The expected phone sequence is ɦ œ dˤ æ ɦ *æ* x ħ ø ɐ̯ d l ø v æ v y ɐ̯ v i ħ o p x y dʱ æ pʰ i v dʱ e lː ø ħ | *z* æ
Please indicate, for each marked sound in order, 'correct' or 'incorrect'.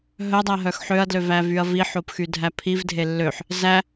incorrect: œ, correct

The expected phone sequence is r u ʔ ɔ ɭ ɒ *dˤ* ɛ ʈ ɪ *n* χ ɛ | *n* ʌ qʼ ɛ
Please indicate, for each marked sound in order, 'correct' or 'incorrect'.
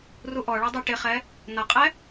correct, incorrect: none, correct

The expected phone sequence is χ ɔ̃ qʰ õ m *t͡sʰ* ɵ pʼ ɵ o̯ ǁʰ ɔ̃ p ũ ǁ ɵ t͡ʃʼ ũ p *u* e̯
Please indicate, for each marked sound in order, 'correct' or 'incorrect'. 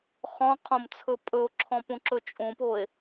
correct, incorrect: o

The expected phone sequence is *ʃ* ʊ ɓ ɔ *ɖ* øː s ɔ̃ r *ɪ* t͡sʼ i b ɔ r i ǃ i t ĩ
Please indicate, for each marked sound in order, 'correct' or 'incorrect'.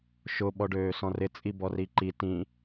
correct, correct, correct

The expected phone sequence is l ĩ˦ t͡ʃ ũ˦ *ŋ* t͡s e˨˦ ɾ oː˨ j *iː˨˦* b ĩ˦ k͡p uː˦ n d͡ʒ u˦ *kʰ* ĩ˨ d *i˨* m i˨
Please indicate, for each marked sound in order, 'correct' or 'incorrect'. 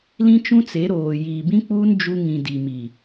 incorrect: none, incorrect: iː˨, incorrect: ŋ, correct

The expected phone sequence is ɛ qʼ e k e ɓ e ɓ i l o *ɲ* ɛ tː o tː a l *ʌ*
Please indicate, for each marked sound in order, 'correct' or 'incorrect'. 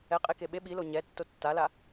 correct, incorrect: a

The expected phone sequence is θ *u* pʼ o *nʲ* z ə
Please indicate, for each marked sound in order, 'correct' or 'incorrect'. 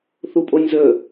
correct, correct

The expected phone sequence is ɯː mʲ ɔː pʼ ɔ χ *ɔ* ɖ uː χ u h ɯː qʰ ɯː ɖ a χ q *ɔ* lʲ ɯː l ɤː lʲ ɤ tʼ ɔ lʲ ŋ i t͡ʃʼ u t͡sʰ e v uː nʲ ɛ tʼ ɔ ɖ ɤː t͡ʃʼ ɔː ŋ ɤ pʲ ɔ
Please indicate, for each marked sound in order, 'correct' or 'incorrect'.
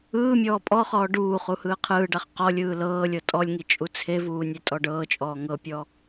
incorrect: ɔː, correct

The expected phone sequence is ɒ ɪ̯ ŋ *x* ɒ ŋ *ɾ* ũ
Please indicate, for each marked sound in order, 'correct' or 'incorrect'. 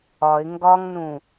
incorrect: ɡ, incorrect: n

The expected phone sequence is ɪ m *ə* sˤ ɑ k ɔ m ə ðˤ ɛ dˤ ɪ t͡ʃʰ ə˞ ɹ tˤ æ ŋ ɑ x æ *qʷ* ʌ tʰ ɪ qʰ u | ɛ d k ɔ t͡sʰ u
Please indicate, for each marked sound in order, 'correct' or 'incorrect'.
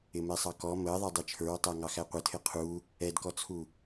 incorrect: ɛ, correct

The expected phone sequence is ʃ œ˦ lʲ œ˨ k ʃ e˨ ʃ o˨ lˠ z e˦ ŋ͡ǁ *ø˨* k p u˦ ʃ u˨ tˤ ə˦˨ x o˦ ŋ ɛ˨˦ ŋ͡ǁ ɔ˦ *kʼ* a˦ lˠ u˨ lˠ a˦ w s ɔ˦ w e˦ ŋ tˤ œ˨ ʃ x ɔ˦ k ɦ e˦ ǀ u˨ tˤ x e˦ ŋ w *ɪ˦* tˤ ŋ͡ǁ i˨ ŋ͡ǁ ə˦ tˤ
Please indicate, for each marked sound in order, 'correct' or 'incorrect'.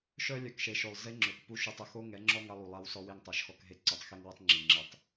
correct, incorrect: ŋ, incorrect: ə˦

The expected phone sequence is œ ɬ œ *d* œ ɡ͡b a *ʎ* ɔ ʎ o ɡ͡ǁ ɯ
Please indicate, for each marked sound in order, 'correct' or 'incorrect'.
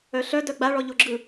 correct, incorrect: ɭ

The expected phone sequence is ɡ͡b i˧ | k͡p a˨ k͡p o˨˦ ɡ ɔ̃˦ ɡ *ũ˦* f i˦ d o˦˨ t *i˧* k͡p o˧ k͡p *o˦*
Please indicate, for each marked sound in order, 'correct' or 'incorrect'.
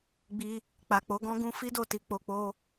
correct, incorrect: i˨˦, correct

